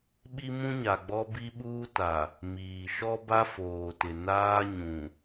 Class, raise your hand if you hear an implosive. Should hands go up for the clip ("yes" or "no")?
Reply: yes